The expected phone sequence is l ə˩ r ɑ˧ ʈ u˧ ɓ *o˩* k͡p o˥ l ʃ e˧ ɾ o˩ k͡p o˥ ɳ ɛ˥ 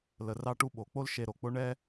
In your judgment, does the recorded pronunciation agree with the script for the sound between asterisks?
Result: yes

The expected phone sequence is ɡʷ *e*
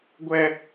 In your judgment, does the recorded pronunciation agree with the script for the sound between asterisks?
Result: no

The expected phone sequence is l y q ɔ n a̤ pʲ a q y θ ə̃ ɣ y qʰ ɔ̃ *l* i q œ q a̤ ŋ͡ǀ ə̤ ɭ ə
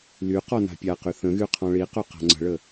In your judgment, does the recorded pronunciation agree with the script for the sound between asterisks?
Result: no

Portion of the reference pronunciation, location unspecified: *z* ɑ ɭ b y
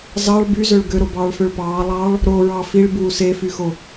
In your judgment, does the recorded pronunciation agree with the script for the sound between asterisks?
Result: yes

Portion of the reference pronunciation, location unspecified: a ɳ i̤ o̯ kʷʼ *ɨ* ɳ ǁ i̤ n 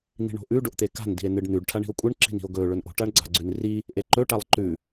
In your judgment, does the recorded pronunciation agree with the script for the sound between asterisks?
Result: yes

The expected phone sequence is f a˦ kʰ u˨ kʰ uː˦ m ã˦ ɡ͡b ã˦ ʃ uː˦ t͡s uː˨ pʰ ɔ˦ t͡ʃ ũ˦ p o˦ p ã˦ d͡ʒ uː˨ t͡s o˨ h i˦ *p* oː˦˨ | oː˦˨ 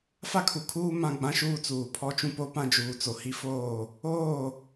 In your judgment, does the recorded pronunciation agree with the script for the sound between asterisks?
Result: no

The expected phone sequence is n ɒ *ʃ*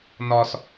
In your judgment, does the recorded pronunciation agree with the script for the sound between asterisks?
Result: no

